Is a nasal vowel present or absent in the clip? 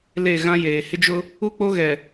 present